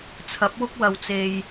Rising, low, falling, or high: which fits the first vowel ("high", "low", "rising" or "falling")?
rising